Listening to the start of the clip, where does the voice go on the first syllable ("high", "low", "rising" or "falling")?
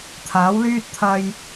rising